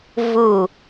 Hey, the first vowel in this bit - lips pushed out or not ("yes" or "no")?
yes